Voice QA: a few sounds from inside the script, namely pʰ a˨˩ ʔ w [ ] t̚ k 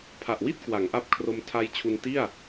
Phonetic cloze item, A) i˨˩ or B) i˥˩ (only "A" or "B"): B